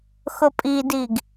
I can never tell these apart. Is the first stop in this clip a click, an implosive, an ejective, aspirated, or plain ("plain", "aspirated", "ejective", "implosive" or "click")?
ejective